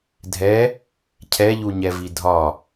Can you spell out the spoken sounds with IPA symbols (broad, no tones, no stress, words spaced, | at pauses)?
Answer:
dʱɛ | cʰɛʎuɲɛvi dʱɒ